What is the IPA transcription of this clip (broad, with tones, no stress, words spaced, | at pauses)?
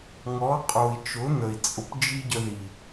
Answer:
ŋɔ˨˦qʼo˨i̯ t͡ʃʊ˨˦n̪ə˨i̯t͡sʼʊ˧p d͡ʒi˦ɟə˧ ði˨